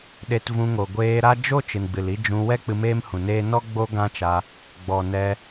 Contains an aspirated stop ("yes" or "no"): no